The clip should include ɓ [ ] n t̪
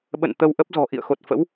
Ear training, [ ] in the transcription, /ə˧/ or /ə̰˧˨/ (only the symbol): ə̰˧˨